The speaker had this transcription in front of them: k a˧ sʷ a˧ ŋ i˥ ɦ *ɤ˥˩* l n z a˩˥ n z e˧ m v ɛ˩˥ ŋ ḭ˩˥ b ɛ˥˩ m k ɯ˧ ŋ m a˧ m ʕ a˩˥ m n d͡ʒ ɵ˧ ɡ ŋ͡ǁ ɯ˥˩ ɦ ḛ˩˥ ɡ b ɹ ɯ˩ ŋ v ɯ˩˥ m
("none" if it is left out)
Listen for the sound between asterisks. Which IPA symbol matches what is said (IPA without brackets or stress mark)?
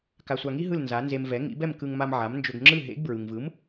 ɯ˥˩